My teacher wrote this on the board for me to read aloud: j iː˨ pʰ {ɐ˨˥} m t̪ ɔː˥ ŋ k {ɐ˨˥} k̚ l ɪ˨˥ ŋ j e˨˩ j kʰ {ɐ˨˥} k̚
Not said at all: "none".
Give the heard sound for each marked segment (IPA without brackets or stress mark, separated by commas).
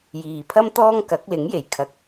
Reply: ɐ˥, ɐ˨˥, ɐ˨